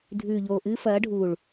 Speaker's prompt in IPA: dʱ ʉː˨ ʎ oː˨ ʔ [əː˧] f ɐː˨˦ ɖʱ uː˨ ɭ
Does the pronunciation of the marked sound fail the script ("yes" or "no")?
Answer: yes